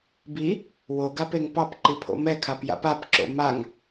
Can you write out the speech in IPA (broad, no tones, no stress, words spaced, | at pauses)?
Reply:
bi | woɡapeŋ pɑpǃipʰo̰ mɛkʰapja̰p apǁo̰ maŋ